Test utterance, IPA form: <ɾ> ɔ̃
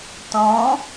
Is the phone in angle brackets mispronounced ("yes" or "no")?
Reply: yes